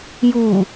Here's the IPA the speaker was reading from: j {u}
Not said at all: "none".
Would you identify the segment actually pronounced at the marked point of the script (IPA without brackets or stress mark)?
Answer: u